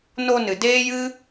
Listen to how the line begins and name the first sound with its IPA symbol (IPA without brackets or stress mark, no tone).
n